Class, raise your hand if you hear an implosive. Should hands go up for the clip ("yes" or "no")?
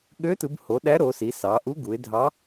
yes